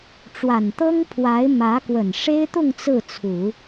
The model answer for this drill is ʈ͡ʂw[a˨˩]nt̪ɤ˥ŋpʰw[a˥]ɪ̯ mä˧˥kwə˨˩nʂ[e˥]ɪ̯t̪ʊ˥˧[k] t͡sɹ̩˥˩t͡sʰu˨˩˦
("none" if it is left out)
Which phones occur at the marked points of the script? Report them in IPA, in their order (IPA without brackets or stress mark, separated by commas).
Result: a˨˩, a˧˥, e˥, ŋ